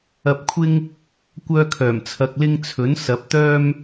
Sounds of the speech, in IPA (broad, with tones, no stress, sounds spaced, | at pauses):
ɐ˧ p̚ kʷʰ ɪ˥ ŋ | kʷ œː˧ kʰ œː˨˩ m t͡sʰ ɐ˧ k̚ l ɪ˥ ŋ t͡sʰ ɵ˨˥ n s ɐ˨˥ p̚ t̪ œː˥ m